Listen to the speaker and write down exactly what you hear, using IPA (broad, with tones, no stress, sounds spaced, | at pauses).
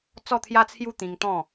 t͡s ɔ˥˧ t̪ʰ j a˦ t͡sʰ j u˦ t̪ ĩ˧ ŋ t̪ ɔ̃˥˧